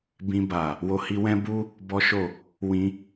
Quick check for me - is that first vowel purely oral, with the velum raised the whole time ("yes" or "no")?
no